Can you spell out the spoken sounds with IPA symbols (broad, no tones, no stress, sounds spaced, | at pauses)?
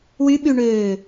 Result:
w y ɓ y ɳ øː